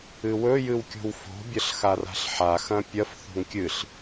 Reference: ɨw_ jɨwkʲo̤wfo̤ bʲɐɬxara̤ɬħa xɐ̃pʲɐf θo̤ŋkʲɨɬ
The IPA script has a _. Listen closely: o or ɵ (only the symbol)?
ɵ